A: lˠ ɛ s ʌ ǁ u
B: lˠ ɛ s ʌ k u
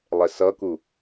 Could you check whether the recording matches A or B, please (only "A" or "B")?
B